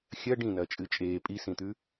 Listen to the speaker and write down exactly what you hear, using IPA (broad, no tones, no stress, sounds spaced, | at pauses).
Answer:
xʲ ɐ ɖ ĩ n ɐː t͡ʃʼ ɨ t͡ʃʼ eː pʼ i s ĩ t̪ ʉ